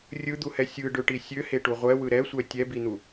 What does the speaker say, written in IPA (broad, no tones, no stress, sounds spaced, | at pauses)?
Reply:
rʲ ɯ d̪ u h ɛ sʲ ɯ ɖ ø ʈ i sʲ ø h e ʈ u ʁʷ ɛ w ɯ ɾ ɛ sʷ ɛ tʲ ɛ b i n̪ u